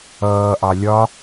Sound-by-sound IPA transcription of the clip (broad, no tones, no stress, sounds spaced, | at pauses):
ʌː ʔ ɑ lʲ ɒ